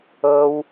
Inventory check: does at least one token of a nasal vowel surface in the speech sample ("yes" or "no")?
no